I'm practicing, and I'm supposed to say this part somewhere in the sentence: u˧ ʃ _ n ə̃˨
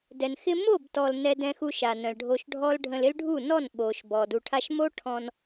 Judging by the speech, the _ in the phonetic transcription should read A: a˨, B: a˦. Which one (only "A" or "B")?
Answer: A